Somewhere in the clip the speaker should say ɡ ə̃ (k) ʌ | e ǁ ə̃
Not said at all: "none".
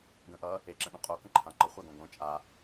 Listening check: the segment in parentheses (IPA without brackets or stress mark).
ʔ